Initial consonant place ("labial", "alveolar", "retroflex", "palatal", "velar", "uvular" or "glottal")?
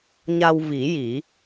palatal